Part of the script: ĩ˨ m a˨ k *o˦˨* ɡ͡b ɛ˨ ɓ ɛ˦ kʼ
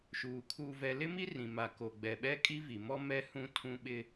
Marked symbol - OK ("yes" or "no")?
no